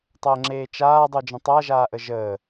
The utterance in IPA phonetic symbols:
tˤəːŋ͡ǁeːt͡ʃaː dˤud͡ʒə̃tˤa ʒaːʔəʒəː

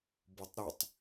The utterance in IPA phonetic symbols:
botˤɾytˤ

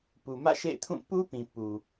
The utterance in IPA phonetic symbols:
pu˨mä̰˦˨ʃḛ˦˨ɪ̯ tʰũ˦˨ pu˦pĩ˨ pu˨

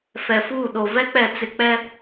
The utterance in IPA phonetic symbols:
fɛ˨fuː˦˨ɗo˨ vɛ˦k͡pɛ˨t͡sɪ˨ k͡pɛ˦

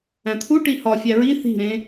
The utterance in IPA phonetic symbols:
æ̃t̪ʰu ʈihɒ fʲæɹi θi̤ɾẽ

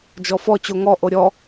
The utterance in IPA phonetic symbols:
d͡ʒɔfɔ t͡ɕoŋɔ ʔoɾʲɔ

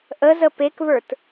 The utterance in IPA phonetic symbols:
ʔəzə pekβə˞t

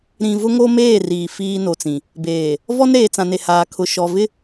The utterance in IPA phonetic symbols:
ɾĩ˨ vʊ˦ŋo˦meː˦˨ riː˨fiː˦no˨t͡sĩ˨ | beː˨ | vɔ˦nɾeː˨t͡sã˨ ne˨haː˨kʰʊ˨ʃɔ˨ vɪ˦

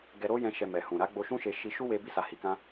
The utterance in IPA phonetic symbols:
ɡɛ˧ɾo˦jɛ̃˧ ʃɛ˨ mɛ˨hũ˨ ɾa˨˦ɡ͡bo˧ʃũ˦ʃe˧ ʃi˧ ʃu˦we˧ bi˧sa˨hi˨kã˧

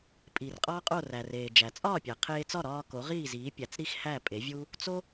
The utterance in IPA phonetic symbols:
pʼi˩rqʼɒː˥qʼo˥˩ ræ˩reː˩d͡ʒæ˩ t͡sʼɒː˥˩pʲæ˩qʰeː˧t͡sɒ˥˩ ɾɒː˧ ko˩˥ʁiː˥˩ziː˩˥ pʲæ˩t͡sɾi˥xhæ˥˩ pʼe˩˥vʲu˥ | t͡so˥

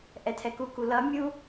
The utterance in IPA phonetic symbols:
ʔɛtʰɛkuku lʌ mʲu

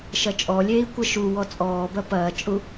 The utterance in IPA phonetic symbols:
ʃɐt͡ʃʼɔlʲeːi̯ kʷɐʃu wɔt͡sʼɔːbɐ pɐːt͡ʃʼu

